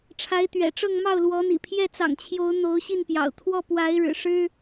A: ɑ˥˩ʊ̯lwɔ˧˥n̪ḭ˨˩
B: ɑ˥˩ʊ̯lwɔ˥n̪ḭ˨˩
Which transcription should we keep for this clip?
A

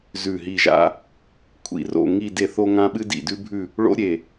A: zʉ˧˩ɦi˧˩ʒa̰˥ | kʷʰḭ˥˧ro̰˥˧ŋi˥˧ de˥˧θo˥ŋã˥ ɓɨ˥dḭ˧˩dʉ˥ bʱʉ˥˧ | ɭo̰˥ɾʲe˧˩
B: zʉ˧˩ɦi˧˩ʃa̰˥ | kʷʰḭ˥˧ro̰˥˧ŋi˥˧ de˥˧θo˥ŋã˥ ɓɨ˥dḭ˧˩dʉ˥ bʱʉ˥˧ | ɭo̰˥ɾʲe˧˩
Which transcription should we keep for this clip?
A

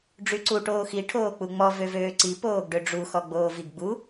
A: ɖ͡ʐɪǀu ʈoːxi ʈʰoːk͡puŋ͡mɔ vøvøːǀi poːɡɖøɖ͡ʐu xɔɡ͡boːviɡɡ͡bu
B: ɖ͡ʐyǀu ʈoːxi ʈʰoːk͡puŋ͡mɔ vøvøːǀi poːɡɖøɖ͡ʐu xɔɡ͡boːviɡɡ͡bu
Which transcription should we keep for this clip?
B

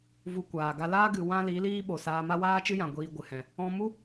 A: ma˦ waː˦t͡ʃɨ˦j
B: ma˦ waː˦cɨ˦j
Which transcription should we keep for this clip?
A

